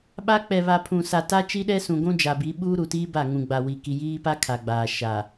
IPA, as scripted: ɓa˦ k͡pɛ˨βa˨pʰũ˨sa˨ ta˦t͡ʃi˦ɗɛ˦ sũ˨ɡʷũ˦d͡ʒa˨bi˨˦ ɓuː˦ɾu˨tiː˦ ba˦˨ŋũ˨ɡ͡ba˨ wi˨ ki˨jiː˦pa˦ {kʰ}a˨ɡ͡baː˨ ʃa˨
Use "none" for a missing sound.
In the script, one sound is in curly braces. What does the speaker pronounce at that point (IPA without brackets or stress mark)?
kʰ